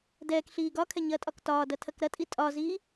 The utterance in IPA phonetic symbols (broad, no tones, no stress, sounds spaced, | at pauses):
d ɛː k ɬ iː ɡ ɒ kʰ ɛ ɲ ɐː tʼ ɒ k t ɒː d ɐ tʰ ɐ k ɾ ɐ tʼ i tʼ ɒ z iː